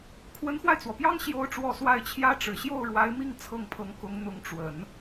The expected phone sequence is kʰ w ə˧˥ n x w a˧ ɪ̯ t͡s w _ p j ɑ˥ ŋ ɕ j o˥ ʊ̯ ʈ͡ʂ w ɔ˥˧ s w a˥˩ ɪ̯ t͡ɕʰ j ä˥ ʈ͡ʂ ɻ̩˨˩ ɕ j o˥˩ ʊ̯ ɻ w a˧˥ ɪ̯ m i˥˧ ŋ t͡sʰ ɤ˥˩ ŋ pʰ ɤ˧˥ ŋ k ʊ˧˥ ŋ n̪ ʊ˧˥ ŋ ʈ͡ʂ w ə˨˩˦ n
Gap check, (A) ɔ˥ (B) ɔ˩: B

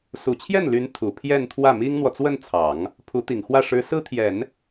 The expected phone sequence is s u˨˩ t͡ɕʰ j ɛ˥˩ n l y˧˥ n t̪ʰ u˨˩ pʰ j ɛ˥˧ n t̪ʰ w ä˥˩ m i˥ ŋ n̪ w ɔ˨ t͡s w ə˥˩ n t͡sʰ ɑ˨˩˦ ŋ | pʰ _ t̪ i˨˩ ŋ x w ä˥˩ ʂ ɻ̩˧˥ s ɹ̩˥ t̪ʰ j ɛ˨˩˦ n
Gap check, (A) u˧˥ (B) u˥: A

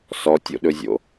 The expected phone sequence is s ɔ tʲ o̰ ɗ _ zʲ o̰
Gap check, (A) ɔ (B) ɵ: B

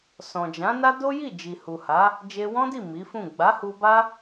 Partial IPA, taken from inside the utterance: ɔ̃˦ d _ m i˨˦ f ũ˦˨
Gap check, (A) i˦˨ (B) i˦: A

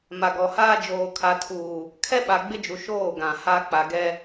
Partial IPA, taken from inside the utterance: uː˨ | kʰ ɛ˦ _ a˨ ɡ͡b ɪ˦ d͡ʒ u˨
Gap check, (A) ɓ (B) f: A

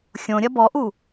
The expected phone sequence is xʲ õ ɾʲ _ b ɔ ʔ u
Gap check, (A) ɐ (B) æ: A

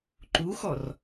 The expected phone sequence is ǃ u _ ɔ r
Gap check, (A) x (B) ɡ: A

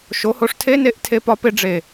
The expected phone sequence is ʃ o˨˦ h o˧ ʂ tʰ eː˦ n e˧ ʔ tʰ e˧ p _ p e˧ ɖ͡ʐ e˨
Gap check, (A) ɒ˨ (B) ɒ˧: B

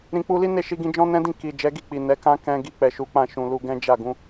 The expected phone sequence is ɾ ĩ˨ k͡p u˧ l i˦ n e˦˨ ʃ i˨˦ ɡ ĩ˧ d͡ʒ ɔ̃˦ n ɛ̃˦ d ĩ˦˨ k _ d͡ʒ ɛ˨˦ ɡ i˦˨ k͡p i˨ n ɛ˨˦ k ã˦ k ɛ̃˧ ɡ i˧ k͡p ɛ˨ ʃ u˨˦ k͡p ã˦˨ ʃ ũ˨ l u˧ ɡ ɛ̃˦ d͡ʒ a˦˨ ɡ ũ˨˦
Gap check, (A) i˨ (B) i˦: A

